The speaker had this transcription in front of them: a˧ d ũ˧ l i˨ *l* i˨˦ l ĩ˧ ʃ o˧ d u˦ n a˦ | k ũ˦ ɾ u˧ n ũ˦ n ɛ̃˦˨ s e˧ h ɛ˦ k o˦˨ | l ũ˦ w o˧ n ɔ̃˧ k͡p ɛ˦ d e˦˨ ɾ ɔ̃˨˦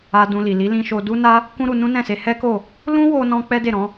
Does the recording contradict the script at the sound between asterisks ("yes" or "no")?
no